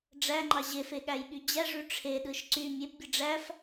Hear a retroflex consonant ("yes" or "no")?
yes